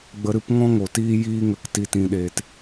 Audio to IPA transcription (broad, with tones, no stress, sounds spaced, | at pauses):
ɡ͡b ə˧ ɾ ɨ˧ p ŋ ɔ̃˦ ŋ o˨ t iː˧ j iː˦ ŋ ə˧ k t i˧ t ĩ˧ ɗ eː˧ t